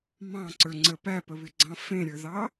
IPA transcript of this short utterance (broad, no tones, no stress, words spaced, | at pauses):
mɑ̃ǀə˞ŋ͡ǀə pæpəβɪɡ͡ǀɑ̃ fẽɾʲə˞ðɑ